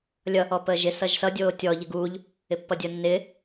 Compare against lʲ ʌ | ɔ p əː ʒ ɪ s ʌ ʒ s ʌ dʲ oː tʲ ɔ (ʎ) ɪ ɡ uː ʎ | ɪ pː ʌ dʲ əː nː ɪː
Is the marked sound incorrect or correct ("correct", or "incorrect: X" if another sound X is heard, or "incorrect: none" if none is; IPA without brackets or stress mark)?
correct